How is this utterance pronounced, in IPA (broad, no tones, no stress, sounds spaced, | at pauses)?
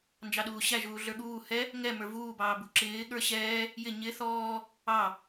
n d͡ʒ ɑ ɗ uː ɕ æ ʒ uː ɮ ə˞ ɠ uː h ɛ | ŋ ɛ m ə˞ v uː b ɑː b u ǁ ɪː ɠ ə˞ ɕ ɛː | j ɪ ɲ ɪ θ ɔː | ɑ